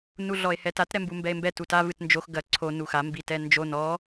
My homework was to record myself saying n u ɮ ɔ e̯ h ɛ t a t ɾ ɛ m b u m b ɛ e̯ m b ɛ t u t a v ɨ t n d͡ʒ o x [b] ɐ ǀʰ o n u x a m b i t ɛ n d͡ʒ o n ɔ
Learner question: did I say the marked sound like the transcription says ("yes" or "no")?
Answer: no